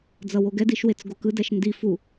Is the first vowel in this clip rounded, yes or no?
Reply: no